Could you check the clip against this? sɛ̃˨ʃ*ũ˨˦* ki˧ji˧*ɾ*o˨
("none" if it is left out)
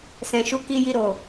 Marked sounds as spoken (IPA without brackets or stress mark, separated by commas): u˨˦, ɾ